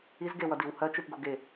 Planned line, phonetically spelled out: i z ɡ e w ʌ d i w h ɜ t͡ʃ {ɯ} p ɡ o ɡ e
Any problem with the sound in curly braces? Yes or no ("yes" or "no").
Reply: no